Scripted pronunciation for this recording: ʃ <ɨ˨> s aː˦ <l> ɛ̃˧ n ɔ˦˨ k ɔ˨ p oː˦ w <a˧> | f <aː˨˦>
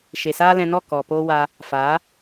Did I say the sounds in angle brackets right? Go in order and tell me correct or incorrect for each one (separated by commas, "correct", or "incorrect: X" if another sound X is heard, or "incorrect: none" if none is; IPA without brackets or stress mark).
incorrect: e˨, correct, correct, correct